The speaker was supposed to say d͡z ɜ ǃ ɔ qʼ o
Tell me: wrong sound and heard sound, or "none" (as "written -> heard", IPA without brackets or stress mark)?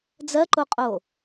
ɔ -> o